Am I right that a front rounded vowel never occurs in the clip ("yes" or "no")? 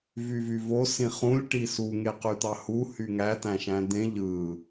no